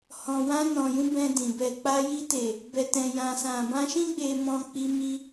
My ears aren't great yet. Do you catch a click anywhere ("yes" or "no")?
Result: no